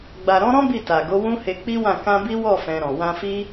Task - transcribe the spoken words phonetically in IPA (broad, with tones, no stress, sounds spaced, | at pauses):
ɡ͡b a˨ ɾ ɔ̃˨˦ ɾ ɔ̃˦ b i˦˨ t a˨ ɡ o˨˦ w ũ˦ h e˧ k͡p i˦ w ã˦˨ k ã˧ b i˦ w ɔ˦˨ f ɛ̃˧ ɾ ɔ̃˨ w ã˧ f i˦